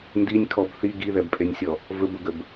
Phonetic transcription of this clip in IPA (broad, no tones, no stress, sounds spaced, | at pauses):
n d i nʲ kʰ ɔ b θ i ɡ i ð ɛ b pʼ e nʲ sʲ ɔ | v ɵ b ʊ ɡ ə b